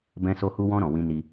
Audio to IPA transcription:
bɛ̃˧so˧hu˧wɔ̃˧ ɾɔ̃˨wĩ˧ni˧

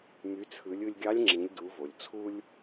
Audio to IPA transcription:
my˩˧t͡sʰɯ˩˧lʲ ɯ˧lʲɡʲɑ˧˥lʲ ŋ͡ǁĩ˩˧lʲdu˩˧vo˩lʲ t͡sʰu˧lʲ

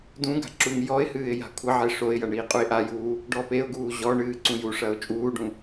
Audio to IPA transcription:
dũɡa̤ ǁuŋjɔɪ̯hɨːɪ̯ ja̤kʷʰɐʕe ʂoɪ̯jɐ ɳiːqʼuɪ̯ʔajuː | ɖɔpeʊ̯ɡuː ʑɔɳɨː ǀũjuʂɐʊ̯ t͡ʃʼuːɖũ

